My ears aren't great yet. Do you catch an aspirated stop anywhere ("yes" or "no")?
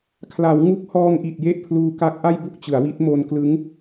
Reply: yes